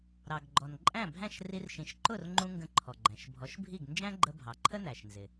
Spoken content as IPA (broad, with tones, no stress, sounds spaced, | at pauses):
ɾ ɑ˩ ɡ ɡ͡ǃ ɔ˩ n ǃʼ æ̃˥˩ bʱ æ̃˥˩ ʃ r i˧ r ʃ ĩ˩˥ ʃ ǃ ʊ˥˩ r ŋ͡ǃ ũ˧ ŋ ɡ ə̃˧ ǃʰ ɔ˩ ɡ͡ǃ æ̃˩ ʃ bʱ ɔ˩˥ ʃ bʱ i˥˩ ɡ n d͡ʒ æ̃˥ ɡ͡ǃ ə˧ bʱ ɑ˩ ǃʰ ə˥ n æ˩ ʃ n z ɪ˩